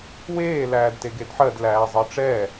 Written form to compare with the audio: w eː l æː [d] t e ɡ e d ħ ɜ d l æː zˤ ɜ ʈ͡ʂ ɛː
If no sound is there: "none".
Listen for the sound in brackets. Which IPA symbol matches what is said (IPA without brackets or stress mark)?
d